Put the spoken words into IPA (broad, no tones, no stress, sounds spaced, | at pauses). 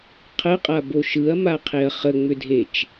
qʰ ə qʼ a b o ʃ ɯ ɐ̯ m a qʰ e ɐ̯ χ ə ŋ͡m ʏ dʱ e t͡ʃ